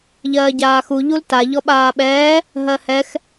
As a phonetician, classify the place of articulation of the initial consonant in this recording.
palatal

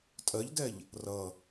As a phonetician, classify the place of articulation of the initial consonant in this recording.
alveolar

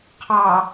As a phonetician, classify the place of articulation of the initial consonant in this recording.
uvular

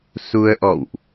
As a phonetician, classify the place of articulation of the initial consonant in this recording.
alveolar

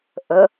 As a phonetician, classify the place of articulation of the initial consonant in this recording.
glottal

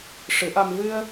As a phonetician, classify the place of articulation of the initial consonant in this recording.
retroflex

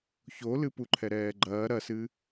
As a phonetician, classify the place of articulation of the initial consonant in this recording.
palatal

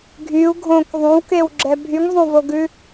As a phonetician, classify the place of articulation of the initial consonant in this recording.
velar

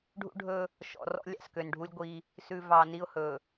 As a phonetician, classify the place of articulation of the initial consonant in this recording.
retroflex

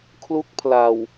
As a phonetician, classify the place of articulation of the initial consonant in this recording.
velar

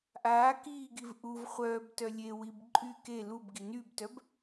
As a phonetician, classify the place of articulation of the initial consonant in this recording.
glottal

